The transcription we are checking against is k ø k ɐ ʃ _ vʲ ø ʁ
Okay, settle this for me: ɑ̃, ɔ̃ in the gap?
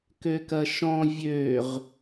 ɔ̃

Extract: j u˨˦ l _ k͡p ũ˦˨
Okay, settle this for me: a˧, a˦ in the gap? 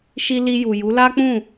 a˦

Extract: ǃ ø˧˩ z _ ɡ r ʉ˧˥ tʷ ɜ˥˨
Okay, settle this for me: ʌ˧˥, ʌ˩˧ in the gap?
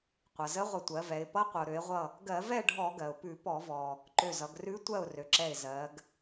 ʌ˩˧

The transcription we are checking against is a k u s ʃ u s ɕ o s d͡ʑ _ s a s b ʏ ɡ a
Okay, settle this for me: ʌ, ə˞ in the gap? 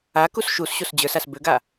ə˞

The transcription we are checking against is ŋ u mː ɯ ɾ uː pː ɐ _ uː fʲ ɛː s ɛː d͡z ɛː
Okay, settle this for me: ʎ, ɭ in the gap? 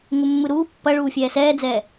ɭ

